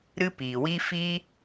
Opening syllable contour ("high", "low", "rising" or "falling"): high